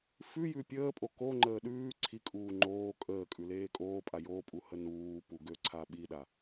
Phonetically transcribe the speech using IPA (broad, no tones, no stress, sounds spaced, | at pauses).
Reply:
f ʉ j ʉ pʲ əː pʼ o k o ŋ͡ǃ əː ɗ ʉː ǀʰ i kʼ uː ŋ͡ǃ oː kʼ əː kʼ ʉ l eː kʼ oː pʼ a j o pʼ u h ə n uː p u ɡ ø ǀʰ a ɓ i ɗ a